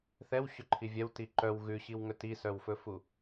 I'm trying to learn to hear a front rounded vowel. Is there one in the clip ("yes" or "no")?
yes